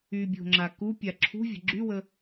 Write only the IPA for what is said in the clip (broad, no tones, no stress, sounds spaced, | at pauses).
y bʲ o̤ ŋ͡ǁ a k u pʲ a ǁʰ ṳ vʲ ə̤ ɡ͡ǁ y w ə